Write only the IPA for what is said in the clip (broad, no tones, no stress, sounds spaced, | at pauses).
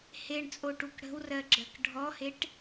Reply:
h e ɳ t͡sʼ o ʈ u k ɽ ə̤ w r ɜ ɡ͡ǁ ɜ k ɖʱ ɔ h e ʈ